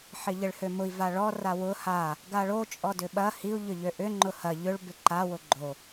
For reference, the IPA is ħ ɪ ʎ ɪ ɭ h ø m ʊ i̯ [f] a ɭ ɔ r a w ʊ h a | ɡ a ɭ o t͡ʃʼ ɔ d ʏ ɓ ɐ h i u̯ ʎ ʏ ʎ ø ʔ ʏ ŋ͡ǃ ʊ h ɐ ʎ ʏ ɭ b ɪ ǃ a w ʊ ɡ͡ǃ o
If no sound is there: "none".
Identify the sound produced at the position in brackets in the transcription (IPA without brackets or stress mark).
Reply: v